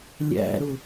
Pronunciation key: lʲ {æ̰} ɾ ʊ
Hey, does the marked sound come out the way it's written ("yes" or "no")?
yes